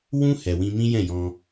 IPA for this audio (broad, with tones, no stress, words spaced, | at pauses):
wũ˦ hɛ˧wĩ˦ mĩ˦jɛ̃˦˨jɔ̃˧